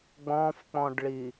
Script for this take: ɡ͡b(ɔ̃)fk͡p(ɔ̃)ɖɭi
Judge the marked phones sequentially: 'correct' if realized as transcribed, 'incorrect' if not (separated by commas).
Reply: correct, correct